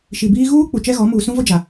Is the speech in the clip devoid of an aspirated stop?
yes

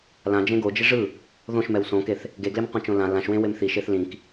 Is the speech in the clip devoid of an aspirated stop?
yes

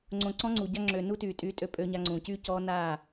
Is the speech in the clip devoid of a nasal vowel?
no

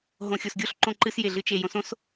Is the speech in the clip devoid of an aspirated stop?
yes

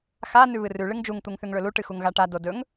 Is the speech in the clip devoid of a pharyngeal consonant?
yes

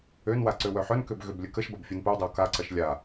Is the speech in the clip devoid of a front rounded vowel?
no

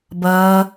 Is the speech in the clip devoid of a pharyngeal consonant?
yes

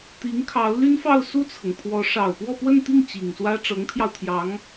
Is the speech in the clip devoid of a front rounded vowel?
no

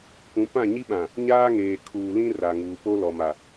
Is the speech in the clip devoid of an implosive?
no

